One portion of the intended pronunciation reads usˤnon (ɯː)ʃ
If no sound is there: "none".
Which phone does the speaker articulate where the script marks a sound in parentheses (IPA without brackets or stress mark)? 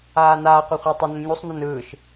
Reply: ɯː